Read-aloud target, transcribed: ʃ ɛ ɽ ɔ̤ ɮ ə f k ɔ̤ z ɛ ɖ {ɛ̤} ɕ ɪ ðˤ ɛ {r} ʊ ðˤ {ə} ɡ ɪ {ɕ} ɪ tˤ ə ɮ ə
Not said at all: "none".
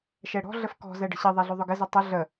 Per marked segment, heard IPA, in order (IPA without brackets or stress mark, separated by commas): ə̤, ɮ, ʊ, z